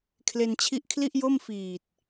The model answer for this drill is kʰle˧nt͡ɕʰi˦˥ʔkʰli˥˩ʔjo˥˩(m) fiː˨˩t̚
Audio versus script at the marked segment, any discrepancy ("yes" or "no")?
no